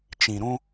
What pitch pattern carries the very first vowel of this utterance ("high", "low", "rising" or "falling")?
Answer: low